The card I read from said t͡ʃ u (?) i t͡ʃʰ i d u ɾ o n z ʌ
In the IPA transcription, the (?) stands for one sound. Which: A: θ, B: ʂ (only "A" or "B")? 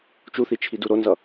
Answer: A